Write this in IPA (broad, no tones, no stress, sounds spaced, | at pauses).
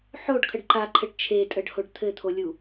ħ o ɖ kʰ ə ɖ ǃ a ǃʰ ɘ ɖ t͡ʃʰ e tʼ ə ɖ h o ɖ t̪ʰ ɘ t̪ʰ o lʲ u